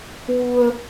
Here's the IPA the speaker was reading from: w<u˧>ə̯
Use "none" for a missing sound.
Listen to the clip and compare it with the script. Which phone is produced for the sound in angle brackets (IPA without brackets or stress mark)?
u˧